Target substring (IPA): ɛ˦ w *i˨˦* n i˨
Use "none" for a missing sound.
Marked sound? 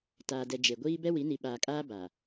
i˨˦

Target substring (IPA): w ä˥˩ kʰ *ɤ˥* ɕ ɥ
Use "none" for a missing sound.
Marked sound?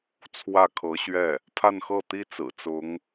ɤ˧˥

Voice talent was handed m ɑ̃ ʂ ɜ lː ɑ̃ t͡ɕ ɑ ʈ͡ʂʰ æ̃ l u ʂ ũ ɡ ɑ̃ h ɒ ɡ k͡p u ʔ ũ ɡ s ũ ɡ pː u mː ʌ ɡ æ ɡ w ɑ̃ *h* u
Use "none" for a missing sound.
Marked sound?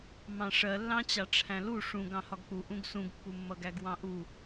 ʔ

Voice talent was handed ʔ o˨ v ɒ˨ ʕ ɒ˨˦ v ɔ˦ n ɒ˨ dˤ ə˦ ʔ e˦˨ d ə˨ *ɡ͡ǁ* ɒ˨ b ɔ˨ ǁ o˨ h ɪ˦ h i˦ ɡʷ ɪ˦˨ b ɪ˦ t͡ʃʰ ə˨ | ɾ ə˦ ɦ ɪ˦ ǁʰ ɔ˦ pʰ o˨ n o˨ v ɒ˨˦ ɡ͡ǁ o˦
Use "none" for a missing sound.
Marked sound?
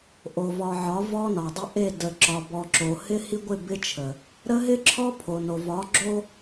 ǁ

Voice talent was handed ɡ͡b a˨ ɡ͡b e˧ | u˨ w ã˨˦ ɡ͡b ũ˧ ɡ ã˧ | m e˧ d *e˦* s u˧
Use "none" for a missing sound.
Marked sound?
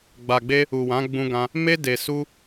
e˨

